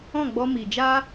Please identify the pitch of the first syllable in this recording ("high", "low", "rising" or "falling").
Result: falling